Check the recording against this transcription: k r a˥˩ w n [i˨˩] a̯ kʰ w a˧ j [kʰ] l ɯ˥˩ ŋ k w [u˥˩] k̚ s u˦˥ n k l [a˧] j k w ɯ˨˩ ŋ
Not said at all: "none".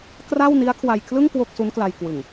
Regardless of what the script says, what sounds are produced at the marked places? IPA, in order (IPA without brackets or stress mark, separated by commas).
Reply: i˦˥, kʰ, o˥˩, a˧